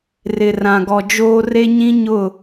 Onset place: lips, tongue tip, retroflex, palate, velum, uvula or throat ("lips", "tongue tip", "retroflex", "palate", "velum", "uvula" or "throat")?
tongue tip